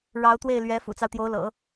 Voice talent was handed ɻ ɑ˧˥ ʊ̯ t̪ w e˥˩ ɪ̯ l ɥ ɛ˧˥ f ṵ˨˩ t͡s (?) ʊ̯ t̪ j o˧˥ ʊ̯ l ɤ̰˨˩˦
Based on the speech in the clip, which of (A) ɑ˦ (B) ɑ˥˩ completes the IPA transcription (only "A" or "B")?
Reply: A